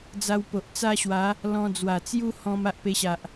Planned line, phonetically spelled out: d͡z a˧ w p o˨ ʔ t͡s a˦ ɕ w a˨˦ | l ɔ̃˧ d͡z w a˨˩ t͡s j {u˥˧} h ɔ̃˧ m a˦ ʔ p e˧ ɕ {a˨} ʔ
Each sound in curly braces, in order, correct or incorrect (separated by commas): incorrect, correct